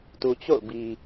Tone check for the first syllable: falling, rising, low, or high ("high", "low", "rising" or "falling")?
low